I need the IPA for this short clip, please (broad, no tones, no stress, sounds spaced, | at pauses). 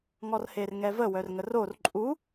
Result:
ŋ ɔ r h e r ŋ ɛ v ə w œ r ŋ ə r o r ǃʼ u